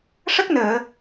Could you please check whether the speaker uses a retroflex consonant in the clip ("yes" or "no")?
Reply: yes